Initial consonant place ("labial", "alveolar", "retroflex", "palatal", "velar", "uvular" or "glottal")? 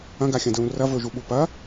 velar